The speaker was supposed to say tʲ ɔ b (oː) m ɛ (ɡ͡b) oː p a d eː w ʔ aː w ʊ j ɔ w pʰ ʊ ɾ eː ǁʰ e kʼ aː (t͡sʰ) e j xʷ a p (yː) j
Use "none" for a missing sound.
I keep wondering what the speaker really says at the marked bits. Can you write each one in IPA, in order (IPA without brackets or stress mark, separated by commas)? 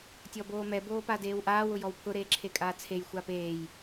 oː, b, t͡sʰ, eː